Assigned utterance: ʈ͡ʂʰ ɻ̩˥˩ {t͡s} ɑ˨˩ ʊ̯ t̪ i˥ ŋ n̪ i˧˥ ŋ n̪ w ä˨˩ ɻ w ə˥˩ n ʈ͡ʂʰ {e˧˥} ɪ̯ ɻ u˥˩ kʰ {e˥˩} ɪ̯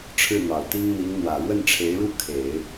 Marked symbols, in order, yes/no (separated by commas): no, yes, no